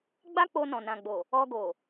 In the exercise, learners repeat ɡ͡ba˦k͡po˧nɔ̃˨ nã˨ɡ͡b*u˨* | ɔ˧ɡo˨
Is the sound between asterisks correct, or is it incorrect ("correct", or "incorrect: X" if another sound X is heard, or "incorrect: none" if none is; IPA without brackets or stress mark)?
incorrect: o˨